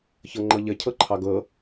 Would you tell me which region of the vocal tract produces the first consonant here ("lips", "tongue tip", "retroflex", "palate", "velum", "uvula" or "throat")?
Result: palate